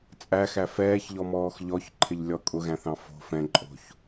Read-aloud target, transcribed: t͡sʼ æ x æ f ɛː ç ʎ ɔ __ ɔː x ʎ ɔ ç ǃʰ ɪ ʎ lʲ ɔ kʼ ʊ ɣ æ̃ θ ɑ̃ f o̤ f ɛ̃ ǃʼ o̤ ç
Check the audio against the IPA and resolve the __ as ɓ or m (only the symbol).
m